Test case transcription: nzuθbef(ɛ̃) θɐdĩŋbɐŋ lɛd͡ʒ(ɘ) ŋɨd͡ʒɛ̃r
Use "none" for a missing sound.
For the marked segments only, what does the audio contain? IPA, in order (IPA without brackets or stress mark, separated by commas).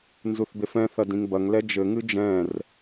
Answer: ɛ̃, ɘ